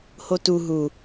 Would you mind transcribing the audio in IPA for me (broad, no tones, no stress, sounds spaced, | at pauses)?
h o t u ɦ u